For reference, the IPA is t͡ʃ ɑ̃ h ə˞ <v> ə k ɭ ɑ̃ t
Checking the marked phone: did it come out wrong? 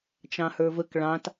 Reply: no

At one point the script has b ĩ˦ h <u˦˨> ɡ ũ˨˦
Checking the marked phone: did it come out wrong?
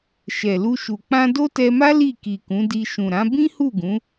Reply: no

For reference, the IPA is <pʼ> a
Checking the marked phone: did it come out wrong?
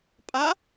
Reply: no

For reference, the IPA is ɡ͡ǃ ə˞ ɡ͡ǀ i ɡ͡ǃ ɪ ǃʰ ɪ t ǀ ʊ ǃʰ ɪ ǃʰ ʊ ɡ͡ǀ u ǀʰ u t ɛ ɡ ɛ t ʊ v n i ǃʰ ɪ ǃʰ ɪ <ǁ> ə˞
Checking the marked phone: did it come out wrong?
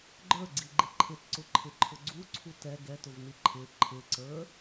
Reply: yes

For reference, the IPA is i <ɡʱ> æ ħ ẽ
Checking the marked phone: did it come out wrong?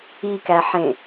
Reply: yes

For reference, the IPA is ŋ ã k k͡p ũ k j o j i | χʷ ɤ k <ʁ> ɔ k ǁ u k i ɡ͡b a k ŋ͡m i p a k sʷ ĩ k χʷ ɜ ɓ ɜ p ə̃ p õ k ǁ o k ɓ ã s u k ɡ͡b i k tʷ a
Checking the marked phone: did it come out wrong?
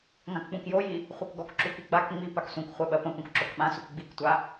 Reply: yes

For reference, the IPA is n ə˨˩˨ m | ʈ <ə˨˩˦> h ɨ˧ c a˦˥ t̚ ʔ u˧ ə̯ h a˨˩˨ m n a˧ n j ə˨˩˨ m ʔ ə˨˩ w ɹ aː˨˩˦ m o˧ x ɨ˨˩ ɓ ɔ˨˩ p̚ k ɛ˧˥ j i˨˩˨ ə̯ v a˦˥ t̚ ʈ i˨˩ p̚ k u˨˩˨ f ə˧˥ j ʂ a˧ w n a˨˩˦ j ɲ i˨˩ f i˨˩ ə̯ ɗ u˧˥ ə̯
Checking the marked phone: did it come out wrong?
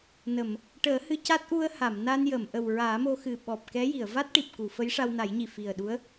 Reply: yes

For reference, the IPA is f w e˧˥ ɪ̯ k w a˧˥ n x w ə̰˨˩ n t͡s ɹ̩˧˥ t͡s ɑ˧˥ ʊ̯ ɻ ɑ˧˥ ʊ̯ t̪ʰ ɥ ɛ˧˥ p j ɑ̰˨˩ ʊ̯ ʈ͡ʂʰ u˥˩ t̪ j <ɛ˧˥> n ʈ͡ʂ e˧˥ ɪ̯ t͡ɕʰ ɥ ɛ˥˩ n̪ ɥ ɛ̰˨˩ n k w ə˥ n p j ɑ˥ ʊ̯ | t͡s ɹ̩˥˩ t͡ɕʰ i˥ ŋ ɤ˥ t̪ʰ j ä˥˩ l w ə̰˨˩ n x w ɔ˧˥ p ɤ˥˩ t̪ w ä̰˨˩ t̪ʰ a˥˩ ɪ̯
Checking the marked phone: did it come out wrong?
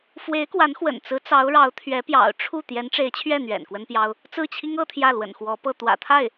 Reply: no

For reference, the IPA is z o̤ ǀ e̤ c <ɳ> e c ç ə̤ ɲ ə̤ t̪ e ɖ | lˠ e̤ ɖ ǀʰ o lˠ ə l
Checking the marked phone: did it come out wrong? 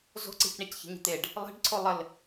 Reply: no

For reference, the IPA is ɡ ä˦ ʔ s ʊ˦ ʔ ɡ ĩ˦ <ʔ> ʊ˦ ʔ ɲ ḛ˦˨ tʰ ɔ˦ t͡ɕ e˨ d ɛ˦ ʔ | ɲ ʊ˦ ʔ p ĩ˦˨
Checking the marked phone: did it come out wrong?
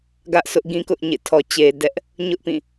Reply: yes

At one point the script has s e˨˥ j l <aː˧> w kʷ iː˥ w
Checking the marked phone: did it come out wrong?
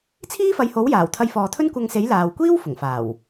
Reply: yes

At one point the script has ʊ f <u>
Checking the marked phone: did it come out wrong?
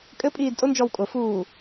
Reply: yes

